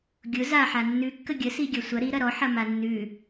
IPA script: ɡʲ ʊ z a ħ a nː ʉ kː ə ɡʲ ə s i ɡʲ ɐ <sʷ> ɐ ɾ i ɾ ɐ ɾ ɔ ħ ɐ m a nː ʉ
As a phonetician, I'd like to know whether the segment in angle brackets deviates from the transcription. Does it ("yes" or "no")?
no